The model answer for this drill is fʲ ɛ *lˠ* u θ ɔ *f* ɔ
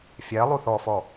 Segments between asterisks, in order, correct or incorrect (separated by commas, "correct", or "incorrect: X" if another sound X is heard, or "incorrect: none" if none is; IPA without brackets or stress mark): correct, correct